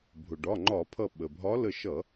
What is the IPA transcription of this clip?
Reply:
bʱ ʊ˩ ɖ ɒ˩˧˩ ŋ͡ǃ ɒ˧˩˧ pʰ ʌ˧˩ ɓ ə˩ bʱ ɒ˨˦ l ə˧˩ ʃ ʌ˧˩˧

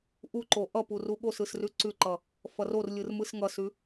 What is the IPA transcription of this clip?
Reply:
ʔ u ǃ o ʔ ʌ p u r u ɠ o s ɯ s r ʉ ǀ ʉ ǃ ʌ | f ʌ r o r lʲ ɯ r m ɯ s ŋ ʌ s ʉ

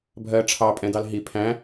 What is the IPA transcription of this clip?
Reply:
bʱ ɜ ʈ͡ʂʰ ɑ pʼ ɛ̃ d ɑ l ɦ i pʰ æ̃

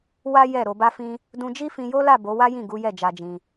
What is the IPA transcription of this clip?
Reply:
w a˦ j ɛ˦˨ ɾ o˨ b a˧ f ĩ˧ | d ũ˧ d͡ʒ i˦ f ĩ˧ j o˦ l a˦˨ b o˨˦ w a˦ j ĩ˦˨ ɡ u˨˦ j ɛ˦˨ d͡ʒ a˧ d͡ʒ ĩ˧

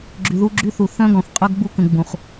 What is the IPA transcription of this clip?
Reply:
ɡ͡ǁ y˨ ð u˦ ɡ͡ǁ y˦ θ u˨ θ œ̃˦ ɡ ɔ̃˨ θ qʼ œ˦ ɡ ɡ͡b u˦ k ə̃˨ ɡ͡b ũ˨ χ

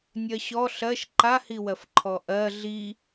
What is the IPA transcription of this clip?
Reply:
nʲ ɜ ɕ ɔ ɬ ɜ ʃ ǃ a h i w ɜ f ǃʰ ɔ ʔ ɜ ɮ i

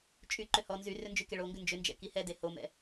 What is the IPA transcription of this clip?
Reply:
t͡ʃʼ y ǃ ʏ h ɔ n z y r ʏ n d͡ʒ y k e ɭ o ŋ ɡ ʏ n d͡ʒ ʏ n d͡ʒ ɛ̰ k i h ɛ d e h o m ɛ̰

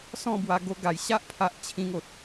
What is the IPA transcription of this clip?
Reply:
s ɔ̃˥˧ b w a˧ ɡ o˧ ɡ a˨˩ j ɕ a˦ ʔ pʰ a˨ ʔ t͡ɕʰ ĩ˧ ŋ o˨ t̚

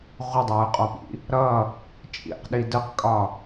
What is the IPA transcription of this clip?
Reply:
ʁʷ ə dˤ ɑ y̯ qʼ ɒ p ḭ | ɾ ʌ | t͡ʃʼ ḭ q ɗ i d ə q kʼ ɒ

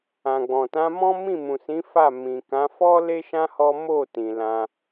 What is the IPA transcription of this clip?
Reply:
ã˨ ɡ͡b ɔ̃˨ t ã˨˦ m ɔ̃˦ m ĩ˦˨ m ũ˨ s ĩ˨˦ f a˦˨ m ĩ˨ k ã˨˦ f ɔ˦ l e˦ ʃ ã˦ h ɔ˦ m o˦˨ t ĩ˧ l ã˦

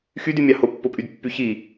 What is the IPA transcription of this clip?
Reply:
x y d y mʲ ɑ h o pː o pʼ y d pː y ç i

